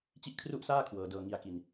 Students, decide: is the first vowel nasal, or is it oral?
oral